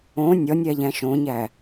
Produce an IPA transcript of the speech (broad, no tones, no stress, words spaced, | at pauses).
õ nʲɒnʲæʎæ̃ ʃõɲæ